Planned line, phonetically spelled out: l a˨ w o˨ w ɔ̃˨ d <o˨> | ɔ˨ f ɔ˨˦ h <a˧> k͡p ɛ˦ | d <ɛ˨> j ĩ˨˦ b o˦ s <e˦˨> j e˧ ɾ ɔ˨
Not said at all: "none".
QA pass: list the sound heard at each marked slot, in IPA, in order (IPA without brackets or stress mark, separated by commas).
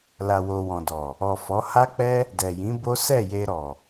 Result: ɔ˨, a˦, ɛ˨, ɛ˦˨